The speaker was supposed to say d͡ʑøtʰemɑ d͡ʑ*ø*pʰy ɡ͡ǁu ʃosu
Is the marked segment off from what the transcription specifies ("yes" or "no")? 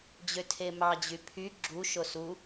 yes